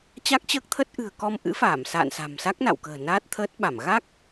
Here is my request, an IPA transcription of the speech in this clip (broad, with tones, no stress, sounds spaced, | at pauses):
t͡ɕ a˦˥ k̚ t͡ɕ əː˦˥ k̚ t̪ʰ ə˦˥ t̚ ʔ ɨ̤˨˩ ə̯ k ɔ˧ m ʔ ɨ̰˧˥ f aː˧˩ m s a̰ː˧˨ n s a̤˨˩ m s a˦˥ k̚ n a̰˧˨ w k ə̤ː˨˩ n aː˦˥ t̚ t̪ʰ əː˦˥ t̚ ɓ a˧˩ m ɣ a˦˥ k̚